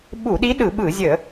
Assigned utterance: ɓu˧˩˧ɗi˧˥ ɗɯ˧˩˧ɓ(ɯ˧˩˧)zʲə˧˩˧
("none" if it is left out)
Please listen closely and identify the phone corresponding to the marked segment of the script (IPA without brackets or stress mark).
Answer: ɯ˧˩˧